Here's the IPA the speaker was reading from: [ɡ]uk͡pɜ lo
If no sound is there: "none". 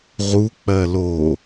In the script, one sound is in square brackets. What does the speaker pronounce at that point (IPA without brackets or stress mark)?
ʁ